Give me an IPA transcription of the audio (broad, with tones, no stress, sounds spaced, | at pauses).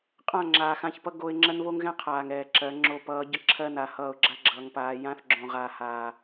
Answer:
qʼ ã˦˨ ŋ͡ǁ aː˨ x ã˦˨ ç p ʌ˦ ɡ o˦ ɪ̯ ŋ͡ǁ ɜ˦ n β o˦ ŋ ɣ ɛ̃˦ qʰ aː˨ ŋ ɛː˨ ǁ ɜ˨˦ ŋ͡ǁ o˦ p ʌː˨˦ ɟ ə˦ ǁʰ ɜ˦ n a˨ h ʌː˦˨ ʊ̯ ɡ͡ǁ a˦ ɡ͡ǁ ʌː˨ ŋ p aː˨ j ã˦ θ ɡ͡ǁ õ˨ ʁ aː˨ h aː˨